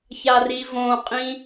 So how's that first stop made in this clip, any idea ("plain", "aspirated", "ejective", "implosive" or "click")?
ejective